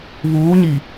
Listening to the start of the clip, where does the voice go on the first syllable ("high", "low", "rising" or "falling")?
rising